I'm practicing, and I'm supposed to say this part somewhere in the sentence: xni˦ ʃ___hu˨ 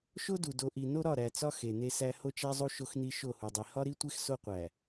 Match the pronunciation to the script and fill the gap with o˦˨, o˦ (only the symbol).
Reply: o˦˨